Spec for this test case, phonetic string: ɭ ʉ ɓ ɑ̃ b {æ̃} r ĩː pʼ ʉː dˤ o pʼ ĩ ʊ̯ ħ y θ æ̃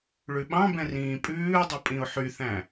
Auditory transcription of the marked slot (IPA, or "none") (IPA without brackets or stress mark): ɛ̃